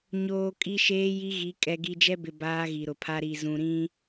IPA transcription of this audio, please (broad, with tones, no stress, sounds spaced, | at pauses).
ɲ oː˨ kʼ i˦ ʃ eː˦ j i˦ ɣ i˨˦ kʼ ɛ˨ ɡ i˨ d͡ʒ ɛ˦ b ɪ˨ b aː˦ ɣ i˨ ɾ ʊ˨ pʰ a˦ ɾ i˨ z ũ˨ ɾ ĩ˦